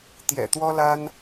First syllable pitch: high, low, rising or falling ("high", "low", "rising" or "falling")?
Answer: low